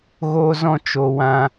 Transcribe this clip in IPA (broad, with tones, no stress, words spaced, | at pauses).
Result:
ɣo˦zɔ̃˦t͡ʃo˧ wã˧